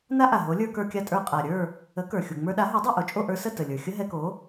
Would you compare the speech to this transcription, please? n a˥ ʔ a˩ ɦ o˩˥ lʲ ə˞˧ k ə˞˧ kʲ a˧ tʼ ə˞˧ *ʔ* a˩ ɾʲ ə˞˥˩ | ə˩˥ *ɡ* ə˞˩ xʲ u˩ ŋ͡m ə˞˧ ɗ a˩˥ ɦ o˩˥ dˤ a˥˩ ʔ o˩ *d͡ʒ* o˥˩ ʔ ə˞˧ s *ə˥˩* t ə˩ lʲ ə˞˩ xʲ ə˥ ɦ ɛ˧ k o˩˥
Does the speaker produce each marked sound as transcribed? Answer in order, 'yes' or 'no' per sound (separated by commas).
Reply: no, no, no, yes